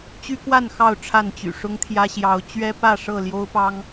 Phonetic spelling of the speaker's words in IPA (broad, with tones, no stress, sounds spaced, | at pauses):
t͡ɕ y˦ k w a˥˨ n x ɑ˥˨ ʊ̯ ʈ͡ʂʰ a˥˨ n t͡ɕ y̰˨˩ ʂ ʊ˦ ŋ t̪ʰ j ä˦ ɕ j ɑ˨˦ ʊ̯ t͡ɕ ɥ ɛ˦ p ä˥˨ ʂ ɤ˥˨ l j o˦ ʊ̯ p ɑ˦ ŋ